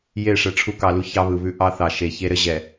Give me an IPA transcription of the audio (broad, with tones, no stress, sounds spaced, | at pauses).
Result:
j e˦˨ ʂ ɛ˦ ʈ͡ʂʰ u˦ k ɑ˨ l u˦ ç ɑ˦ β ɯ˨ β ʉ˦ ʔ ɑ˦ θ ɑ˨ ʃ e˨ ç e˦ ɾ ɘ˦ ʑ ɛ˨